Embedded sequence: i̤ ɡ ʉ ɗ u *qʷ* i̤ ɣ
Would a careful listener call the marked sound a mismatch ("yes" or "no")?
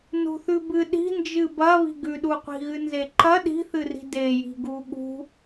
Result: no